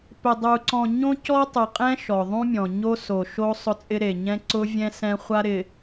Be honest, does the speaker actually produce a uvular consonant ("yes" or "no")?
yes